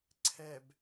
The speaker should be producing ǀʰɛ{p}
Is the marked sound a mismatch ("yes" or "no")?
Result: yes